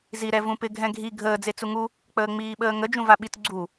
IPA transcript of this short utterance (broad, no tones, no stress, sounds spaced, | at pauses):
z i ɾ ɛ v ũ p ɪ ɡʱ ɛ̃ ɡʱ i ɡʱ əː d͡z e t͡s u ŋ u | k͡p əː ŋ͡m iː ɓ əː ŋ ə d͡ʒ ũ v a ɓ i t ɡ͡ǀ u